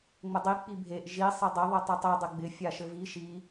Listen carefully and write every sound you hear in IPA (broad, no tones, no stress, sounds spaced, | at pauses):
ŋ͡m ə dˤ i k͡p i bʱ e ʔ ʒ i sˤ e dˤ ɘ ðˤ i tˤ ɛ tˤ o dˤ ɪ ɡ͡b ɪ fʲ a ʃ ɘ v i ʃ i